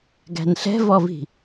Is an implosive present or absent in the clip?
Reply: absent